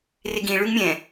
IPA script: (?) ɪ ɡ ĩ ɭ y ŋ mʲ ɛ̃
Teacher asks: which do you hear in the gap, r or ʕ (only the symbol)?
r